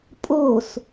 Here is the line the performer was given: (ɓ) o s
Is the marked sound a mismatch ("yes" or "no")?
yes